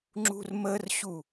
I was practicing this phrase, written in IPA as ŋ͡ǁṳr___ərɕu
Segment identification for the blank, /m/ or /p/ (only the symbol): m